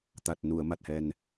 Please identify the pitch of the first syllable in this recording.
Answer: low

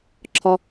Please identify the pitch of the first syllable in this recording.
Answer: low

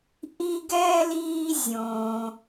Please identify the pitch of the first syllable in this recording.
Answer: high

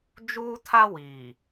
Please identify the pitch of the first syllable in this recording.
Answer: high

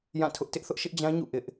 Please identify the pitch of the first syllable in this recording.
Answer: falling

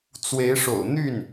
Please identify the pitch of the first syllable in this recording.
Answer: rising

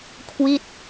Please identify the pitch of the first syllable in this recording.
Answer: falling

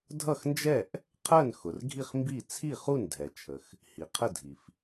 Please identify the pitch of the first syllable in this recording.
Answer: falling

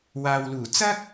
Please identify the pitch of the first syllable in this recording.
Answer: low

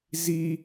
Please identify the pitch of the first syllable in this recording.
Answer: high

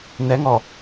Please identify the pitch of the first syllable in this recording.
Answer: rising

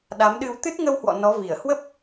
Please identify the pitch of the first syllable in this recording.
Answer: rising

